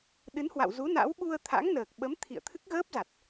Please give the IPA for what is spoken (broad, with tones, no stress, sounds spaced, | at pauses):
ɗ ɨ˨˦ n h w a̰˧˨ w z u˨˦ n a̰˧˥ w ɓ u˧ ə̯ t̪ʰ a̰˧˥ ŋ n əː˨˩ k̚ ɓ ə˨˦ m t̪ʰ ḭ˧˨ ə̯ t̪ʰ ɨ˦˥ k̚ ɣ əː˦˥ p̚ z a˨˩ t̚